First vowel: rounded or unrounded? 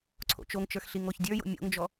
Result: rounded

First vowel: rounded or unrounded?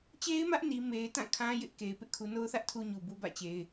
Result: unrounded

